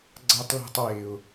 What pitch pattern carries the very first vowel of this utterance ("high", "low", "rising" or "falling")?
high